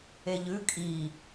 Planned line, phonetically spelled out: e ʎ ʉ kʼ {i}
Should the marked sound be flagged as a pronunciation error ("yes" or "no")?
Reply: no